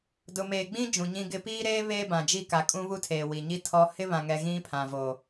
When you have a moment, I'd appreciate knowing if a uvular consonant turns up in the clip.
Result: no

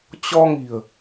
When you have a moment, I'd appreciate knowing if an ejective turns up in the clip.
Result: no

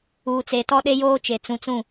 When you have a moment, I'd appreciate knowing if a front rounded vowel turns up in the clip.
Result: no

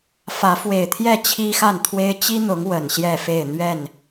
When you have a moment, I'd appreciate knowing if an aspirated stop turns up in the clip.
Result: yes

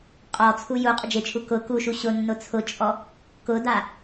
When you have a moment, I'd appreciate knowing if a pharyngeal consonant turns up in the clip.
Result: no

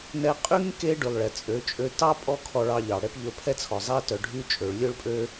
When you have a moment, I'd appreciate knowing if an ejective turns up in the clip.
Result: yes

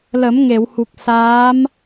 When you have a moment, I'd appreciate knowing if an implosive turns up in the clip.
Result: no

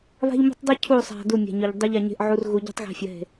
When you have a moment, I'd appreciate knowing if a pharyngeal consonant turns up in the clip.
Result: yes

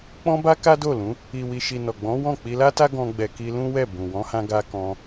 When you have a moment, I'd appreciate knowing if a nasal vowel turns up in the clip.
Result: yes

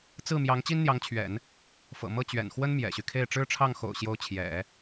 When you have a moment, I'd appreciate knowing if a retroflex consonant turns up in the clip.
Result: yes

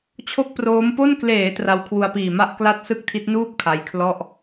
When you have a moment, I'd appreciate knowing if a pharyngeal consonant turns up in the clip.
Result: no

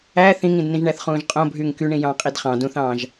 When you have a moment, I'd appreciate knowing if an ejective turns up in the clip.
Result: yes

